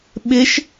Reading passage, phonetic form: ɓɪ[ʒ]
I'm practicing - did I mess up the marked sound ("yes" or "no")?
yes